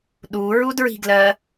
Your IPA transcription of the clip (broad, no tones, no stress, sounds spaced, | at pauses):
ɗ u ɹ u d ɹ i̤ ɡ l ɜ